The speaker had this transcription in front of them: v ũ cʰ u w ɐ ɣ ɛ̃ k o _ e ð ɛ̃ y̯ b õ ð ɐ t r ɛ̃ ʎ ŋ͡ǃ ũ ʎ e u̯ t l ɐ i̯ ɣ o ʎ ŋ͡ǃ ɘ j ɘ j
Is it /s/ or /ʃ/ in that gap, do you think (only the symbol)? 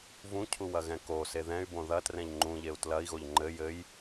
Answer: s